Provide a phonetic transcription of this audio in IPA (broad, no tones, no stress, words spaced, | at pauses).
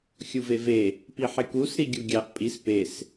xʲuveve | piħekus ɾiɡʲuɡʲɑʔ pʼis pes